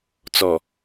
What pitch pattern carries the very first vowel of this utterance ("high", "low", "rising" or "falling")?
low